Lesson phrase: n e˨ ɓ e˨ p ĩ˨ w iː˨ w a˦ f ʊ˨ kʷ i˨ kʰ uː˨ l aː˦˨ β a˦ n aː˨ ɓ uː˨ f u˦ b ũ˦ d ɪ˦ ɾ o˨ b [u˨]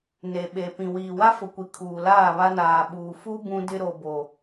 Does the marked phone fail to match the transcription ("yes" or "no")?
yes